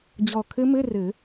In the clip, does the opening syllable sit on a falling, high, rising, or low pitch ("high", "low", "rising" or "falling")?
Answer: low